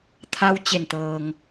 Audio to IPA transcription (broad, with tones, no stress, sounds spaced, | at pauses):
t̪ʰ a˧ w t͡ɕ e˧˩ n t̪ ɤː˩ ŋ